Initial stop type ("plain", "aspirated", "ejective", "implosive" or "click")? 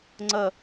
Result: click